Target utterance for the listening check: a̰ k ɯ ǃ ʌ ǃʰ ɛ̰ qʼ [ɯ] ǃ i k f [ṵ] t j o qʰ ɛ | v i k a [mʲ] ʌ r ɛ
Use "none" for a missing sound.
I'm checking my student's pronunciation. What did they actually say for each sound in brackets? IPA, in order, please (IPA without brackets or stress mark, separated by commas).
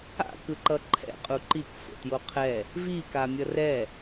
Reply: u, o̰, mʲ